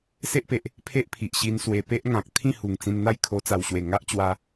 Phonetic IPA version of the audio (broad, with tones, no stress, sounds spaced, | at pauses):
s e˦ ʔ p e˨ ʔ | pʰ e˦ ʔ pʰ i˨ ʔ ɕ i˧ n s w e˨˩ p e˦ ʔ ŋ ã˨ k̚ t̪ʰ ĩ˥˧ h u˨˩ ŋ t͡s ĩ˧ n n̪ a˥˧ j kʰ o˧ t͡s a˨˩ w ɕ w e˨˩ ŋ a˦ ʔ t͡ɕ w a˧